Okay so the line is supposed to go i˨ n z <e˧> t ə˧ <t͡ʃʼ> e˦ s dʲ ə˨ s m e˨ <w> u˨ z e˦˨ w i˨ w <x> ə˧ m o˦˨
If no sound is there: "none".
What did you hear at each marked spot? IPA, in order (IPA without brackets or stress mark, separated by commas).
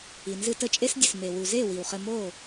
ɨ˧, t͡ʃʼ, w, χ